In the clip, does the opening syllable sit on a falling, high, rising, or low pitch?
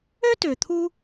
high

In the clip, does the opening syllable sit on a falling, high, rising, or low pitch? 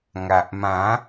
low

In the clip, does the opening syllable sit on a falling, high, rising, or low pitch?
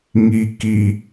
low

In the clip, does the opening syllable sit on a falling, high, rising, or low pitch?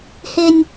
high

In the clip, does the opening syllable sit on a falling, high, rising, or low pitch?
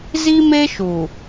high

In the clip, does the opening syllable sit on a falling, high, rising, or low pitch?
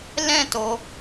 falling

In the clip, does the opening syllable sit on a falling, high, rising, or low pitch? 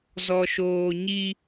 low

